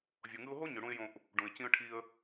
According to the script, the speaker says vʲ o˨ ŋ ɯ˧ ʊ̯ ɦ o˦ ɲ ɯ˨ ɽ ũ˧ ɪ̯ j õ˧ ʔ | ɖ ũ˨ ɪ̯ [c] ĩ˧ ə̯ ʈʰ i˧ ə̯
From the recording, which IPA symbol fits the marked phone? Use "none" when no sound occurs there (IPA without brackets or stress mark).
c